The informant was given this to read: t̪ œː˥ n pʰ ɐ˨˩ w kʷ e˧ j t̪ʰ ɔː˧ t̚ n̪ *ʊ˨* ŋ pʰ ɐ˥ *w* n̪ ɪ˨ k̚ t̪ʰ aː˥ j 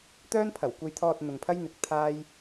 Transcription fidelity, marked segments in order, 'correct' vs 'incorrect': correct, incorrect

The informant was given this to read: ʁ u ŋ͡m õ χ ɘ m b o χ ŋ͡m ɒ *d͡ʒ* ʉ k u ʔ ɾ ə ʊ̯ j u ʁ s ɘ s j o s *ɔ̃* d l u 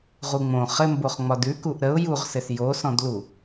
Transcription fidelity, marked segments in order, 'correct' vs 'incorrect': incorrect, correct

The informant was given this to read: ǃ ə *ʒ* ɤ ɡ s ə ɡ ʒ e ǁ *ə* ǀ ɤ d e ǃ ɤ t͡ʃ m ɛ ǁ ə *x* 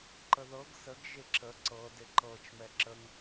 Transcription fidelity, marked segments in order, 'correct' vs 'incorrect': incorrect, correct, incorrect

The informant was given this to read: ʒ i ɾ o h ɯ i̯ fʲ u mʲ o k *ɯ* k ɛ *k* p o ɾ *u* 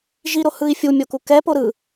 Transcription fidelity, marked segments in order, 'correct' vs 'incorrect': incorrect, incorrect, incorrect

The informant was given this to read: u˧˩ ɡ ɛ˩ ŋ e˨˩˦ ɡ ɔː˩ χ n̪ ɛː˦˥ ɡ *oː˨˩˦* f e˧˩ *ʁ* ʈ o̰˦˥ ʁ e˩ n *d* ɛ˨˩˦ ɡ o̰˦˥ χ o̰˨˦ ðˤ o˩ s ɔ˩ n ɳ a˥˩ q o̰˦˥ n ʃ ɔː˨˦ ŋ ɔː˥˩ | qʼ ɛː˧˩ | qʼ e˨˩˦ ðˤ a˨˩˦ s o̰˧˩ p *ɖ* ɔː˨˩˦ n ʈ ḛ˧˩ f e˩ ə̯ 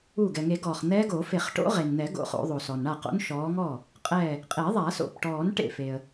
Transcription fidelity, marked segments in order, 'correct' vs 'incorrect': correct, incorrect, incorrect, incorrect

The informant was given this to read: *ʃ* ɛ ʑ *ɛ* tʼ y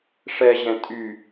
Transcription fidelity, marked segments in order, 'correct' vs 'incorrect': incorrect, incorrect

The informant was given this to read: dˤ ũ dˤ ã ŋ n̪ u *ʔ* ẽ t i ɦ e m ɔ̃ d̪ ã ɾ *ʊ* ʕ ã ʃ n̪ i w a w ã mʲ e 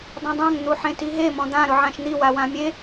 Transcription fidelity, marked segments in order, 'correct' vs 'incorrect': incorrect, correct

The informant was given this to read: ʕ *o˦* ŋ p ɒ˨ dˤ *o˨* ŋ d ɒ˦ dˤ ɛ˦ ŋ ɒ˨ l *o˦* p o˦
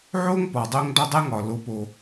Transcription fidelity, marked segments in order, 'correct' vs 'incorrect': correct, incorrect, correct

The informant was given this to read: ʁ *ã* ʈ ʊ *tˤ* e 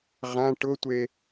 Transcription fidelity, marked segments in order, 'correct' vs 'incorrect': correct, incorrect

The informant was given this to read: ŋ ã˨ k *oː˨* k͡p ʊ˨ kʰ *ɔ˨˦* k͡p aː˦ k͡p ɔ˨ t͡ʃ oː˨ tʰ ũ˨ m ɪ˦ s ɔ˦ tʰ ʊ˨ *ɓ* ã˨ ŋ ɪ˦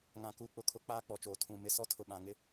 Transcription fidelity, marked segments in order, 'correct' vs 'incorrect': incorrect, incorrect, correct

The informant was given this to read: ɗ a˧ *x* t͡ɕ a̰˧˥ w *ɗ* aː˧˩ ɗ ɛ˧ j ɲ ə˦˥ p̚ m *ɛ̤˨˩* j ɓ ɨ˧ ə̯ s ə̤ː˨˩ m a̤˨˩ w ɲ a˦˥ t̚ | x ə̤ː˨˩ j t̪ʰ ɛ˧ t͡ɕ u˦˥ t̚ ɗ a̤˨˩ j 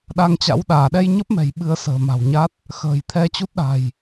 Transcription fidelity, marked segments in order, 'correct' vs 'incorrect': incorrect, correct, correct

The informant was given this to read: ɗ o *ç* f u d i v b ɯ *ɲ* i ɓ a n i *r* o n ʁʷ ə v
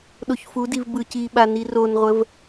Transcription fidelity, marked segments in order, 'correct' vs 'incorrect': correct, incorrect, correct

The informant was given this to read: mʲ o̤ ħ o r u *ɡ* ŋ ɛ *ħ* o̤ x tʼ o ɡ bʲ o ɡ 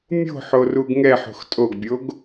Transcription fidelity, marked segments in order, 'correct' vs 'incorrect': correct, correct

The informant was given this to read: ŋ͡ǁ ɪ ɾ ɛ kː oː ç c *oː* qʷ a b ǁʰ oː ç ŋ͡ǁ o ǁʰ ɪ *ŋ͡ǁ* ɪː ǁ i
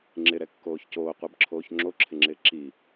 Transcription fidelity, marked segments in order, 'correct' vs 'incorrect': correct, correct

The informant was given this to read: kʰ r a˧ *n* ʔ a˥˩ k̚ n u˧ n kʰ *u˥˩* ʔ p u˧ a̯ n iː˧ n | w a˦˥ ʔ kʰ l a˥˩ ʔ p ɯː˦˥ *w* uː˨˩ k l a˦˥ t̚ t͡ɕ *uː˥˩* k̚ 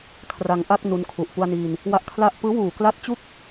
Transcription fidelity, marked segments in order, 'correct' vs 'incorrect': incorrect, incorrect, correct, incorrect

